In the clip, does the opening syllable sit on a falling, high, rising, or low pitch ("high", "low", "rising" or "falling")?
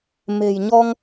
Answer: low